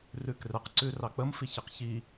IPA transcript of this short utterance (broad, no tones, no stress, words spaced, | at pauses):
rʉkrɛqǀʉ rɑk͡pəmfiçiq çi